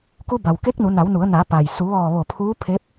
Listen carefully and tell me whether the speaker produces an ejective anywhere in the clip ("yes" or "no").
no